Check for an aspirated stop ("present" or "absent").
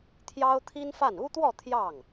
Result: present